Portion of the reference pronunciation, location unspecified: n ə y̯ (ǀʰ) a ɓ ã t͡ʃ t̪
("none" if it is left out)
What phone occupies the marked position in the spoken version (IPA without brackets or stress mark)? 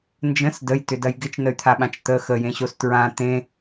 t̪ʰ